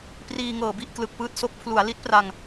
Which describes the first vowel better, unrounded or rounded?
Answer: unrounded